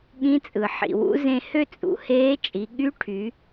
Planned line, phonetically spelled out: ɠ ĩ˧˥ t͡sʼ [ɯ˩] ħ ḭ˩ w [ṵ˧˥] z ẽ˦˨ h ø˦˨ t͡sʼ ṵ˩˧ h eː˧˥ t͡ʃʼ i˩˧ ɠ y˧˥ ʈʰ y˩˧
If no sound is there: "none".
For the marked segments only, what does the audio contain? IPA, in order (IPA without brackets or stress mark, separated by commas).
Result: ɯ˩, ṵ˧˥